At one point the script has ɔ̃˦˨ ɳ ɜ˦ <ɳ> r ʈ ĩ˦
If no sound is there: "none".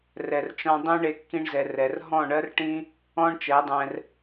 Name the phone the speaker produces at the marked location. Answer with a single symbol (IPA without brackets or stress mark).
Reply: none